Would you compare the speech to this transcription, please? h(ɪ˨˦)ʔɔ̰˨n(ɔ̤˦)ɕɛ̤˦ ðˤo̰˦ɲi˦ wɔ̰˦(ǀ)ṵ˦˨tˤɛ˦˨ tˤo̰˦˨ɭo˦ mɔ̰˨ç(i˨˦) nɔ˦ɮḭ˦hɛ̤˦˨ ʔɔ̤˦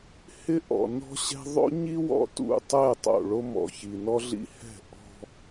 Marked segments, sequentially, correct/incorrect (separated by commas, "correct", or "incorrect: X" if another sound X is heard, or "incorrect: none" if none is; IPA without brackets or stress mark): incorrect: ɪ˦, correct, incorrect: t, incorrect: i˨